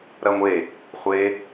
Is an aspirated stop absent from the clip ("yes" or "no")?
yes